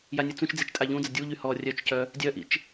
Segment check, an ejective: present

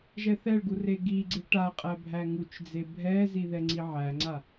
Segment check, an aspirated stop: absent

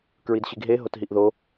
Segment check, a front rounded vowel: absent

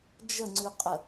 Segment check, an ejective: present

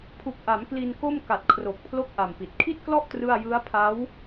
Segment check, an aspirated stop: present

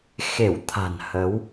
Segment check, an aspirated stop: present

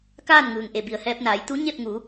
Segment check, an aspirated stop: absent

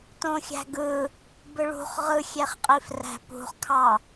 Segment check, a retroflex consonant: present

